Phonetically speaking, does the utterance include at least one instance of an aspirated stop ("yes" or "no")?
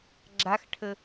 yes